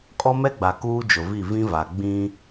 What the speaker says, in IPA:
kʼ ɔ˦ m ɛ˦ ɡ͡b a˨ k uː˦ d͡ʒ ʊ˨ v i˦˨ v ĩ˦ v a˨ ɡ͡b ĩ˦

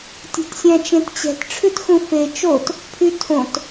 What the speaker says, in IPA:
tʲ ɛ̤ t sʲ æ̃ t͡ʃ ẽ t t͡ɕ ɛ̤ t ʈ͡ʂʰ ʉ t x ũ f e t͡ʃ o t | pʰ y tʰ õ t

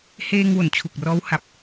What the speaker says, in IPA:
h eː˧ ŋ w o˩˦ n t͡ɕʰ u˨˩ k̚ r ɔː˦˥ w h a˨˩ p̚

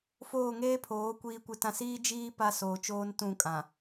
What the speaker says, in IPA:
f oː˦˨ ŋ eː˦ pʰ oː˨˦ kʷ iː˦ kʷ ɪ˦ t ã˦ s iː˦ d͡ʒ iː˦ p a˦ s oː˨ t͡ʃ oː˦ n t ũ˦˨ kʼ ã˨

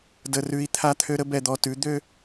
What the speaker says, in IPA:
d ə˨ r ʉ˨ i̯ t̪ʰ a˦ t̪ʰ ø˦ ɾ ə˦ b ɛ˨ d̪ ɔ˨ t ʉ˨˦ d̪ ø˦

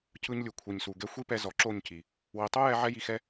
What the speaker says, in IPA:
c ɯ˧ ɲ lʲ u˨ kʷʰ i˨ ɲ s u˨ ɡ ɛ˧ xʷ i˦ p ɛ˧ z ɔ˨ ǁ o˦˨ ɲ c i˨ | w i˨ tˤ o˦ j ɛ˧ ʕ ɛ˦ j i˧ x ɛ˦

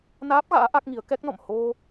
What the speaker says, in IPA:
n aː˦˥ p̚ ɣ a̰ː˧˥ ʔ a˦˥ k̚ ŋ i˨˦ ə̯ k ɛ˦˥ k̚ n ɔ̰˧˨ m h o˧

